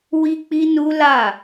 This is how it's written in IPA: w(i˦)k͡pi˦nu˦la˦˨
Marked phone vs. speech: correct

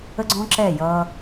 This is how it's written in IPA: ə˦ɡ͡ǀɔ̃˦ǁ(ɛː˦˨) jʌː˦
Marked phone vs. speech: correct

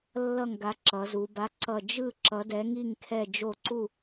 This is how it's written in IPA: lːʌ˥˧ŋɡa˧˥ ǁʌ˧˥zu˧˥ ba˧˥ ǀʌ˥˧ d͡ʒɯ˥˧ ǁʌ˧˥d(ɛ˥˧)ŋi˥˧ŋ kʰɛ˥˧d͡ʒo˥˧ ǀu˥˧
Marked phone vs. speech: incorrect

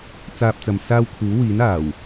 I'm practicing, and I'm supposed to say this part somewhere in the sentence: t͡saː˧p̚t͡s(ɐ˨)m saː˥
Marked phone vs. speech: correct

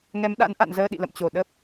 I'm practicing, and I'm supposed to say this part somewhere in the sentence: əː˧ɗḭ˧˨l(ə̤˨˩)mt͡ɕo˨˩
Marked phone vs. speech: incorrect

